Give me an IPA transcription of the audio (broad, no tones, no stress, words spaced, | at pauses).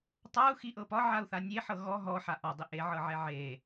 tˤau̯xiʔɤ pɒʕau̯θa nʲeħɤ ɣɔ ɦɔħa ʔɒdˤi ʔeʕɤʕɛ ʕe